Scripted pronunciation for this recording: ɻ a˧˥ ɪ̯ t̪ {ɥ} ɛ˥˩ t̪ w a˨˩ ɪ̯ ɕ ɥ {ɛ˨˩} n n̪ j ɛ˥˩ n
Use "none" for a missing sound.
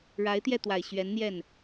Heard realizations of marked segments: j, ɛ˧˥

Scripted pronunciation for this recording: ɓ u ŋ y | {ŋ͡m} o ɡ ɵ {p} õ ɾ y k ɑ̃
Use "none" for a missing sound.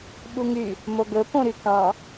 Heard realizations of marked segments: m, p

